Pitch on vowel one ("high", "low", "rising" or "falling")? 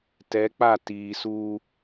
rising